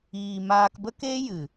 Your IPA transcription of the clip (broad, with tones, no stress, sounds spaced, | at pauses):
iː˨ m aː˧ k b ə˦ k e˦ j ɨ˨